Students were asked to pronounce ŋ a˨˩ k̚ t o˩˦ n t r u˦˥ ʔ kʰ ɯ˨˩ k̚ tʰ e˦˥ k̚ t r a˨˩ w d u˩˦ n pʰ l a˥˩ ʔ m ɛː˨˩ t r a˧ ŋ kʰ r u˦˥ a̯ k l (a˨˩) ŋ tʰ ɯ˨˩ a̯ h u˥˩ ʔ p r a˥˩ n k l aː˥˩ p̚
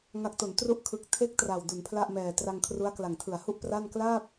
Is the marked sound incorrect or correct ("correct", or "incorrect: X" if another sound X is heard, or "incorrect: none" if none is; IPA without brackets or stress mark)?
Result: correct